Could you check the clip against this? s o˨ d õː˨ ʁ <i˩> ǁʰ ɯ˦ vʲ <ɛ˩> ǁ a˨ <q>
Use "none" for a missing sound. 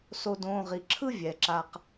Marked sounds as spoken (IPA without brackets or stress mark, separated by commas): i˩, ɛ˩, q